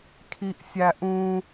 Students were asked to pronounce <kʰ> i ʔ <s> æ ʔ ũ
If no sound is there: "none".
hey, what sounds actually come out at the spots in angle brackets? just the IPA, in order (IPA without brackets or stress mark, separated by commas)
kʰ, sʲ